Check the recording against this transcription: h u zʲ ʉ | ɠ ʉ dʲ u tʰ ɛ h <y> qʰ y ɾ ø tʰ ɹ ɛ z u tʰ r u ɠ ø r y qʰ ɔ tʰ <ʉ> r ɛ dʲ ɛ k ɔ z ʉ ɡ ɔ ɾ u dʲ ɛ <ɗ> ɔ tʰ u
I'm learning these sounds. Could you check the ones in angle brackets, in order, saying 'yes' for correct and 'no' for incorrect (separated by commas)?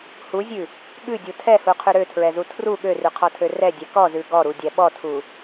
no, no, no